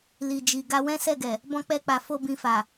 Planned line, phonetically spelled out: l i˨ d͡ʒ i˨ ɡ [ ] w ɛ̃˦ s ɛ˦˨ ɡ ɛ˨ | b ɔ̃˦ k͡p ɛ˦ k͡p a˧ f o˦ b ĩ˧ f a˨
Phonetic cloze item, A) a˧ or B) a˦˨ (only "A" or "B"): A